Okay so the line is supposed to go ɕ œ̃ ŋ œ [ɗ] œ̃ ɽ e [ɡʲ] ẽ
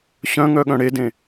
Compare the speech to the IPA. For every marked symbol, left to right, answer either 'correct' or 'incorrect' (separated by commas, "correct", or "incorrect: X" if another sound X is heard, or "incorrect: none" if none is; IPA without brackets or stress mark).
incorrect: ɠ, incorrect: d